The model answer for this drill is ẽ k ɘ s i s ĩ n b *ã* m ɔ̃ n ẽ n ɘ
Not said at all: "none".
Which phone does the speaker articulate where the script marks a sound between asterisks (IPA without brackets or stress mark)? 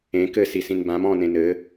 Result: ã